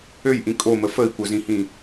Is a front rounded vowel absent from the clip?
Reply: no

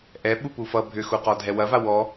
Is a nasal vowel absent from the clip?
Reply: yes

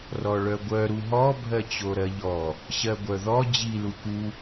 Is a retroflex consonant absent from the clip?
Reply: no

